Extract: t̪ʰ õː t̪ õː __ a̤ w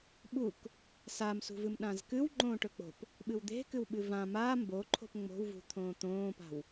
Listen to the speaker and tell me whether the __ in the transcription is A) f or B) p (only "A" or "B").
B